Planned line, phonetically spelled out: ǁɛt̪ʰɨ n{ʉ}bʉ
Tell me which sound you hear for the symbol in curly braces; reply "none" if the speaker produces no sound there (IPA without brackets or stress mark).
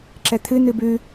ɨ